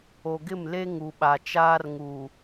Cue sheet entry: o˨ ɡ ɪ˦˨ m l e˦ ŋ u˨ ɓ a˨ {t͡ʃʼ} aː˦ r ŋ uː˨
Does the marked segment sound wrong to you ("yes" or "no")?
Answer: yes